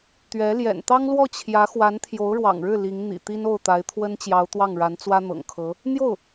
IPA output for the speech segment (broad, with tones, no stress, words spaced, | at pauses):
t̪ɥɛ˧˥ ljɛ̰˨˩nt̪ɑ˥ŋlwɔ˥˩ t͡ɕʰjä˧˥xwa˧˥n t̪ʰjo˧˥ʊ̯ɻwɑ̰˨˩ŋɻɻ̩˥˩ li˧˥ŋn̪ḭ˨˩ t̪i˥no˥˩ʊ̯ t̪a˧˥ɪ̯t̪ʰwə˥nt͡ɕjɑ˧˥ʊ̯ t̪wɑ˥˩ŋɻa˧˥nt͡swä˥ n̪ɤ̰˨˩ŋkʰɤ˧˥ | n̪jo˥˩ʊ̯